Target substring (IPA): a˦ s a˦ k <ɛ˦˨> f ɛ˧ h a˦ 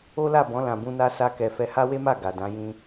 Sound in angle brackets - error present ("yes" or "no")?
yes